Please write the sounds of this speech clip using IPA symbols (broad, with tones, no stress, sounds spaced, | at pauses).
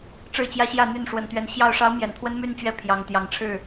ʈ͡ʂ ɻ̩˥˨ t͡ɕ j ä˦ ɕ j ä˥˨ n̪ y˥˨ n ʂ w ə˨˩ n t̪ ɥ ɛ˨˦ n ɕ j ɑ˥˨ ʊ̯ ʂ ɑ˦ ʊ̯ m j ɛ˨˩ n t̪ʰ w ə˦ n m y˥˨ n t͡ɕ ɥ ɛ˥˨ pʰ j ɑ˨˩ ŋ t̪ j ɑ˨˦ ŋ ʈ͡ʂʰ ɻ̩˥˨